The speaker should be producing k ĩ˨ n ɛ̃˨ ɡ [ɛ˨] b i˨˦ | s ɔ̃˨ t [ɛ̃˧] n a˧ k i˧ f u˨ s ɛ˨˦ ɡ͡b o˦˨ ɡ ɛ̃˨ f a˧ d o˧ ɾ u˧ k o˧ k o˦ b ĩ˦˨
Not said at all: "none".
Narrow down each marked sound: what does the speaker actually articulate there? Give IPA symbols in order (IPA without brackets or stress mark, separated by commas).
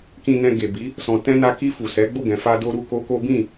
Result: e˨, ɛ̃˧